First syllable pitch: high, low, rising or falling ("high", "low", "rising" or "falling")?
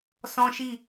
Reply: high